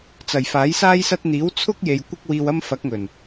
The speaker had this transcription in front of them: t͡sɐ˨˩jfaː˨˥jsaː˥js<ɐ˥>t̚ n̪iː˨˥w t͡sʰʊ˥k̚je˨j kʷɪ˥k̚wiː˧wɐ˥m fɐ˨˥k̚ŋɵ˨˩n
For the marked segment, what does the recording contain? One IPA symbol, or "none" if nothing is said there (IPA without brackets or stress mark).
ɐ˥